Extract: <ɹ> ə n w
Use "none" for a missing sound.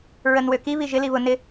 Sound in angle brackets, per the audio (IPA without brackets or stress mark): ɹ